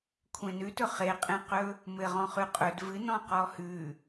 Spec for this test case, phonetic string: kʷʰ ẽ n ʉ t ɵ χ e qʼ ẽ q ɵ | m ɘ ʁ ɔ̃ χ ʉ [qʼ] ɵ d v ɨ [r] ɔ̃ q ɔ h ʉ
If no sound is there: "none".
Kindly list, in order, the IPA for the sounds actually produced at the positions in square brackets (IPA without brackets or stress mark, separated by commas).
qʼ, n